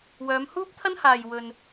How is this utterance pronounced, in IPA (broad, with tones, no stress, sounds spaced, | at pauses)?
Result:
w œː˨˧ m h uː˥ p̚ t̪ʰ ɐ˥ n h aː˨ j w ɵ˨ n